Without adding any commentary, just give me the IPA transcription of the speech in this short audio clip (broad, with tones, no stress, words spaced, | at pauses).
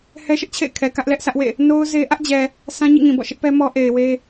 hɛ˦ʃɪ˦ʔt͡ɕʰḛ˦˨ɪ̯ kʰɛ˨ kä˦ʔlɛ˦ʔsä˦ʔwḛ˦˨ | no˦ʊ̯ ze˦ ʔä˦ʔd͡ʑɛ˨ | sʰã˦ɲḭ˦˨ŋĩ˨bɔ̰˦˨ ʃɪ˦ʔpɛ˦mɔ˦ ʔe˨ɪ̯we˦